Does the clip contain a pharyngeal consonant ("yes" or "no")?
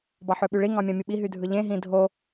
yes